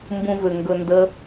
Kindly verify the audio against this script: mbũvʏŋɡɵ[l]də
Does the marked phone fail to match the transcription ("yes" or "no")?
yes